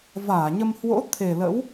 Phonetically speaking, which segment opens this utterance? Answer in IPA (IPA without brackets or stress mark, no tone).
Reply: v